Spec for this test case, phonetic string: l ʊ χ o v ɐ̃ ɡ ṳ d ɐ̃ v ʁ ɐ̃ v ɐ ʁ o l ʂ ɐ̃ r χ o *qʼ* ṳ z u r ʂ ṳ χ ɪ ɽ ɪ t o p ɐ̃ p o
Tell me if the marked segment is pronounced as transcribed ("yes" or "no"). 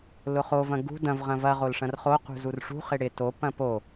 no